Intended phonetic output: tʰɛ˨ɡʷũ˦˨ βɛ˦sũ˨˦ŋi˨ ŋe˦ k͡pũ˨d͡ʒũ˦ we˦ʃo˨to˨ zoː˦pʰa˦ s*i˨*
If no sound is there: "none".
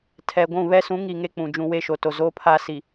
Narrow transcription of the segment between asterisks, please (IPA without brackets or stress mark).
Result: i˨